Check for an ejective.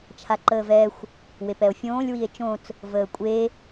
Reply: present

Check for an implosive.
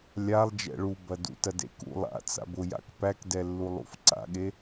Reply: present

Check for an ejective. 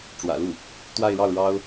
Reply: absent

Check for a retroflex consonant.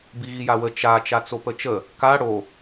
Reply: present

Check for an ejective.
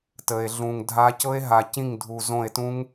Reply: absent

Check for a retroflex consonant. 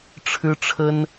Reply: present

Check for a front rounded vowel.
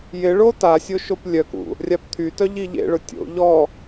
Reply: present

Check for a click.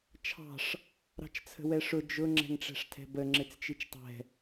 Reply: present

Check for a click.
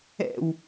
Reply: absent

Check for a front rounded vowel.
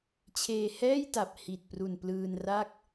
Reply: absent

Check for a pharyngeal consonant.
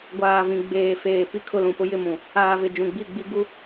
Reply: absent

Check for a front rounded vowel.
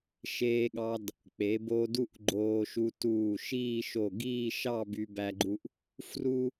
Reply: present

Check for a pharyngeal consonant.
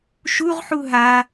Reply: present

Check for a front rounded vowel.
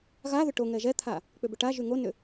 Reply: present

